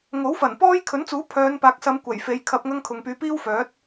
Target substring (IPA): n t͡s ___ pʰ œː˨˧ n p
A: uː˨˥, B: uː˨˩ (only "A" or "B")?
A